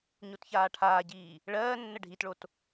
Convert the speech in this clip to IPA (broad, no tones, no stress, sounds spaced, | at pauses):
ɲ o t ç aː ʈʰ aː ɟ iː | ɭ ɜː nː ə ɖʱ i t ɭ o t